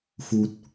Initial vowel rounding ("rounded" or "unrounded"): rounded